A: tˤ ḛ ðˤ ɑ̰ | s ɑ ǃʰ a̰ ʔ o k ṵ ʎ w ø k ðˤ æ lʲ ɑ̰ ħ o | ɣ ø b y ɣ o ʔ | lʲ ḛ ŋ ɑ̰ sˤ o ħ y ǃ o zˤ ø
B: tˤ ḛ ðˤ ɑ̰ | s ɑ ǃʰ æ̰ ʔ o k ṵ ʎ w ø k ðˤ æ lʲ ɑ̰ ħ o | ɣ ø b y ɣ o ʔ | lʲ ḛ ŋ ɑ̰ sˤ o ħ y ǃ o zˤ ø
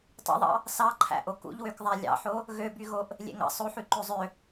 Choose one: B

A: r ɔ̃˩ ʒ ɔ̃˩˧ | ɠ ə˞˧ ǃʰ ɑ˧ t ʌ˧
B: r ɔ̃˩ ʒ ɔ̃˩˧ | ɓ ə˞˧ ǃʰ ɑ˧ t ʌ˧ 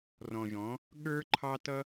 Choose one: A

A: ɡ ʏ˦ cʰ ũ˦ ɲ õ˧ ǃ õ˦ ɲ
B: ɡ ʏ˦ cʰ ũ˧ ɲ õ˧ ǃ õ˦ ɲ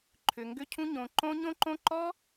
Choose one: A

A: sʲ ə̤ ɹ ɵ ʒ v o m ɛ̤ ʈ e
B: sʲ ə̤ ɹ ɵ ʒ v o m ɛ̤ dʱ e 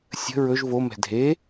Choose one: B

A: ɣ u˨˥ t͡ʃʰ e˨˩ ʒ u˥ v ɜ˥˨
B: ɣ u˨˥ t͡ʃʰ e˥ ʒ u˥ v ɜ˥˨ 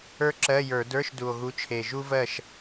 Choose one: A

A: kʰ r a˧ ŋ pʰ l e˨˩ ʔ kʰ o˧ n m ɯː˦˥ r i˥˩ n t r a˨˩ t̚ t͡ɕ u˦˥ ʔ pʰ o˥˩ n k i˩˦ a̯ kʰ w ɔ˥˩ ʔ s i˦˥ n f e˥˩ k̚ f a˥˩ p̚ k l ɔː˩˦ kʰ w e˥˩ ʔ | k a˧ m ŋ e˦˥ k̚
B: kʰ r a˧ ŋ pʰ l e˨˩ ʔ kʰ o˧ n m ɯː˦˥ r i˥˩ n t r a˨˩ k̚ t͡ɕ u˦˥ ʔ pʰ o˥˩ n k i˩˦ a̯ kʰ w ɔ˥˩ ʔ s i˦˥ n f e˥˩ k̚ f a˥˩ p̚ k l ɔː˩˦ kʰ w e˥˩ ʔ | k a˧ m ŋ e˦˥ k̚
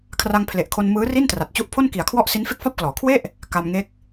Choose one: A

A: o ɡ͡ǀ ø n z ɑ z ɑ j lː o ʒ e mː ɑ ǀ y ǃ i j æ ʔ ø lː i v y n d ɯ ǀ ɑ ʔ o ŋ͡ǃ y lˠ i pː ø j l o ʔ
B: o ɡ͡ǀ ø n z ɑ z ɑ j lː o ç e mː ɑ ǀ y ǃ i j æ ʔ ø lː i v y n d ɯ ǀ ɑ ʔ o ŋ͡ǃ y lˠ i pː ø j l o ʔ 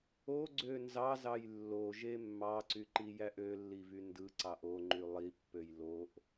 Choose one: A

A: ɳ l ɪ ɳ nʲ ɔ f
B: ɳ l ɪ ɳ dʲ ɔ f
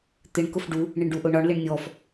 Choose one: A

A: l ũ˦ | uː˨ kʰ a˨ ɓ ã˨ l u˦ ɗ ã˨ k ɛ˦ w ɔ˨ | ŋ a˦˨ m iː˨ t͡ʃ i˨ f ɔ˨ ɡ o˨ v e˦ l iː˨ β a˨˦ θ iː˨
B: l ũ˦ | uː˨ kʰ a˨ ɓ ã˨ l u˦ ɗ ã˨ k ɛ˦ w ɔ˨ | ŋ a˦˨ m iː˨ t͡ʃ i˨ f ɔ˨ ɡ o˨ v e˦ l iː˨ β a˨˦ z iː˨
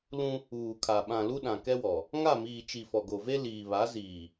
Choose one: B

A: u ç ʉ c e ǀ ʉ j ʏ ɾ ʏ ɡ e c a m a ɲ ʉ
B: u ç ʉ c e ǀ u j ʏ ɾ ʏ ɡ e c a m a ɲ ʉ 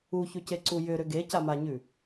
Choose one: B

